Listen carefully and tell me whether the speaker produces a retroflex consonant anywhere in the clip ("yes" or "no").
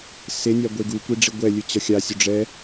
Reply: yes